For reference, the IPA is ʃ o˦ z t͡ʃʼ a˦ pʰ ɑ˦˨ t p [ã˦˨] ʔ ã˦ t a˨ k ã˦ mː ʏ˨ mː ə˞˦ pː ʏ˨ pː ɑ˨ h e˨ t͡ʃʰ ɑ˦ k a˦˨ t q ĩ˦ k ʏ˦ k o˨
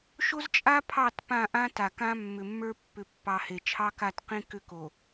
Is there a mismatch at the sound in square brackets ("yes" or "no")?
no